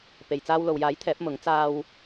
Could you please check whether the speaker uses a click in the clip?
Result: no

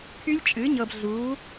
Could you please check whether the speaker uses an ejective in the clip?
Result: yes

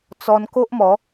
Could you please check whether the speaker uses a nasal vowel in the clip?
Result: no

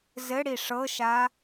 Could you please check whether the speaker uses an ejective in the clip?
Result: no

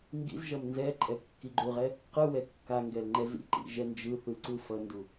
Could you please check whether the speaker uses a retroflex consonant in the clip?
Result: no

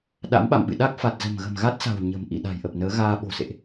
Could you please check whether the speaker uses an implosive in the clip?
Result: yes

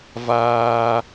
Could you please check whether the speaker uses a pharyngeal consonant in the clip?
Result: no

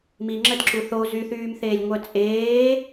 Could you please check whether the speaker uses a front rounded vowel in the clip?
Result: yes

